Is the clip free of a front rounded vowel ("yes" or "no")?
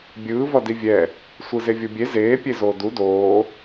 yes